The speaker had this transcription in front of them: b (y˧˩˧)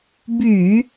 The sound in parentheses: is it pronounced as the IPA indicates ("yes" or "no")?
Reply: yes